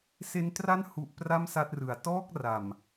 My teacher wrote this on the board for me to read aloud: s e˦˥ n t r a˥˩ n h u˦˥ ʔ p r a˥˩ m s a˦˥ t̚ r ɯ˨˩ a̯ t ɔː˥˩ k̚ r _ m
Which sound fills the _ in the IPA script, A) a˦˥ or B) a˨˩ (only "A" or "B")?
B